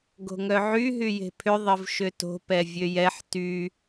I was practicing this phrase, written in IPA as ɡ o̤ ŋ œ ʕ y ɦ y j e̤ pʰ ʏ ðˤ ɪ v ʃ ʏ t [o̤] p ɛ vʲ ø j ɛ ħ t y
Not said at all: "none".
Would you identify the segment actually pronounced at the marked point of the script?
o̤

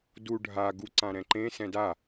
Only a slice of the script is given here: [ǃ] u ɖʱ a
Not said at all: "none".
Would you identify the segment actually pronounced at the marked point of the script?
d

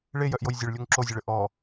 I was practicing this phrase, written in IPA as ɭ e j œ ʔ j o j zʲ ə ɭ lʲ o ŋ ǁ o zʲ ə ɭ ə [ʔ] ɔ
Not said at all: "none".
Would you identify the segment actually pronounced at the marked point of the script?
ʔ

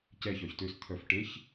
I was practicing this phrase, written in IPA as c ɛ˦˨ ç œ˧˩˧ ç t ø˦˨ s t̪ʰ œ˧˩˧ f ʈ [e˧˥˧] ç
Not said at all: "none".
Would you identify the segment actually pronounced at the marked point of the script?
e˧˥˧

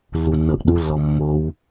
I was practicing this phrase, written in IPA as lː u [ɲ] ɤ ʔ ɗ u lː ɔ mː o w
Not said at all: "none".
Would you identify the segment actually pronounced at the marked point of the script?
nː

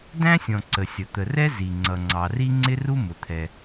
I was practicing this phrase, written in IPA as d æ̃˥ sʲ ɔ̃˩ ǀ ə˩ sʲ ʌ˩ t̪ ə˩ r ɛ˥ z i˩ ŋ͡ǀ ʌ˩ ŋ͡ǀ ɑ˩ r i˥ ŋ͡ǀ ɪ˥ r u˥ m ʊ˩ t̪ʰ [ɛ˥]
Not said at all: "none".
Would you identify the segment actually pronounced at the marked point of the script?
ɛ˩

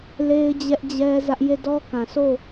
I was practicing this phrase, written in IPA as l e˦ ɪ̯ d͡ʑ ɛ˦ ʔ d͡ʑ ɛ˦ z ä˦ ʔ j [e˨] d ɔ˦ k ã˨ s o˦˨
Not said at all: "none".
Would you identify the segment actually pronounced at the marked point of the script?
e˦˨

